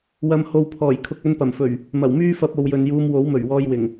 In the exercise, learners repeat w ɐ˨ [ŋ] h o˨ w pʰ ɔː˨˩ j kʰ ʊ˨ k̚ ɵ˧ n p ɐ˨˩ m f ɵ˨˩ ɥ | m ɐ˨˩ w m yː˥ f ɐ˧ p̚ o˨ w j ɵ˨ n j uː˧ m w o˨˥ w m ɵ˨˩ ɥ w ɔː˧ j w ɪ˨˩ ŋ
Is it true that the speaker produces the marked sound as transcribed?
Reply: no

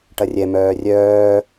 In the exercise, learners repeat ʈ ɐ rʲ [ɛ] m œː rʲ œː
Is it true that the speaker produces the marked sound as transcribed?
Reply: yes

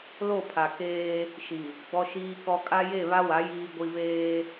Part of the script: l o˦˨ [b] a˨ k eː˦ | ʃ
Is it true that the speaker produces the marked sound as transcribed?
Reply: no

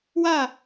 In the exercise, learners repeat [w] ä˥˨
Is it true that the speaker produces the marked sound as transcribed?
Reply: yes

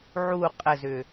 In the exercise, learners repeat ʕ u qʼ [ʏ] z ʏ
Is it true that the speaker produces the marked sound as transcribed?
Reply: no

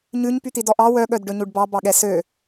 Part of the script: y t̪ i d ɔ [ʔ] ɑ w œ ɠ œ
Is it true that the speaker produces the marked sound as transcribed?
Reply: yes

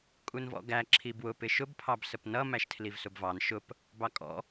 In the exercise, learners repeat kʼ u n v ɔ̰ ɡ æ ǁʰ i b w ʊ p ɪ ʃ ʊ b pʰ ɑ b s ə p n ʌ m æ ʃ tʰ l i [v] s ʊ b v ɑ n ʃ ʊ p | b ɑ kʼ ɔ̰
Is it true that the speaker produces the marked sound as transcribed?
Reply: yes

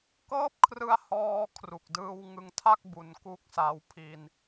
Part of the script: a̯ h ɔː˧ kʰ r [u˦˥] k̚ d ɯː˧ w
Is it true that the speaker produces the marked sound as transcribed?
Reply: no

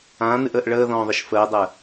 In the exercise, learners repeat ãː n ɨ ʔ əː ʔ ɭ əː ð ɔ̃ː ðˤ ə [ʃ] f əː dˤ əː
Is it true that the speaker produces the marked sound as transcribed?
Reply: yes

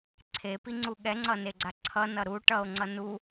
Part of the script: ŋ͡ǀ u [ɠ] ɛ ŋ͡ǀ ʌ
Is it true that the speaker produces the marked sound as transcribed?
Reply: yes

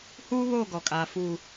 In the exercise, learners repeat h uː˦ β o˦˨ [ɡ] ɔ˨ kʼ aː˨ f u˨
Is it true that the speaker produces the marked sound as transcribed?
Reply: yes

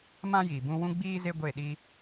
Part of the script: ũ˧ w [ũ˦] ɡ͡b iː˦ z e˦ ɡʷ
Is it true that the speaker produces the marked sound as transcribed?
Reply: yes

